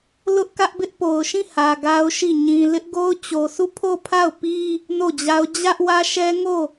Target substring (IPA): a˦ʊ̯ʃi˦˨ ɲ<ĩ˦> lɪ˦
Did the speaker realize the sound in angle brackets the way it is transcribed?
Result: no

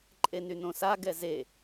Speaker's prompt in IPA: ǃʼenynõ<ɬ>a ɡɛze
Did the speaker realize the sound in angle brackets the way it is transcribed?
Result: no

